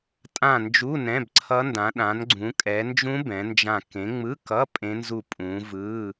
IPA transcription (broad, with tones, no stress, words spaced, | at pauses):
tʼã˦˨nd͡ʒu˧˥˧ nɛ̃˧˥˧bǀʰʌ˦˥ndã˨˦ ɗã˨˦nɡ͡ǀũ˨˦ kʼɛ˨˦ nd͡ʒũ˦˥ bɛ̃˨˦nd͡ʒã˦˨ kẽ˨˦ŋ͡mɯ˧˥˧kʌ˧˥˧ pʼẽ˦˥nzu˦˨ pʼũ˨˦vɯ˧˥˧